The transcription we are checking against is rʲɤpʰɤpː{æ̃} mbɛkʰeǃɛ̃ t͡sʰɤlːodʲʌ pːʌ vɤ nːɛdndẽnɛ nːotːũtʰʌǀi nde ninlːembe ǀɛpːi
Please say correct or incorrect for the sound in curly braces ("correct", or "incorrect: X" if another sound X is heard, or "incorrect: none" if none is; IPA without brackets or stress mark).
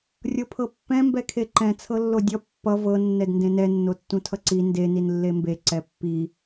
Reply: incorrect: ɛ̃